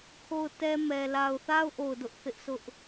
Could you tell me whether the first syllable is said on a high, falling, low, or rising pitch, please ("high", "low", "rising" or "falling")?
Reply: falling